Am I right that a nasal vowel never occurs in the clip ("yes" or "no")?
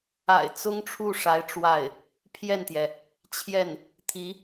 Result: yes